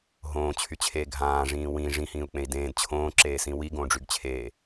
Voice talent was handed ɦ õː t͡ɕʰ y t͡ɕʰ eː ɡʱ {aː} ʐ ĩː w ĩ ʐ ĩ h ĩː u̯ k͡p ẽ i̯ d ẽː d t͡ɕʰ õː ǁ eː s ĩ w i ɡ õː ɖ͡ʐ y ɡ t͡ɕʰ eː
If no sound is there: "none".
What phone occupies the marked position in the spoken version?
ãː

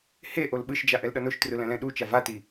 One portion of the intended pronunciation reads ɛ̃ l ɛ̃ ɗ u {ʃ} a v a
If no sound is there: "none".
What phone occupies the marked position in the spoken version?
t͡ʃ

